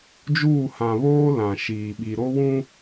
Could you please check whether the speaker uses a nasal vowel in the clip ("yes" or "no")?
yes